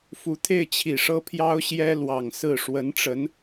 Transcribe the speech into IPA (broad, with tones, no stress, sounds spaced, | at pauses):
f u˨˩ t̪ʰ e˥˩ ɪ̯ t͡ɕʰ i˨˩ ʂ ɤ˥ pʰ j ɑ˥ ʊ̯ ɕ j ɛ˥ l w ɑ˨˩ ŋ s ɹ̩˥˩ ʂ w ə˧˥ n ʈ͡ʂ ə˧˥ n